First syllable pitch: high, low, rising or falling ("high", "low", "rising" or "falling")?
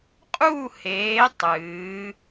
falling